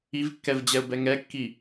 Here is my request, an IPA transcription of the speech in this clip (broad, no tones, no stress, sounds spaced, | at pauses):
i v kː ɛ v d͡ʑ ɛ ʊ̯ b ɛ ŋ ɛ kː i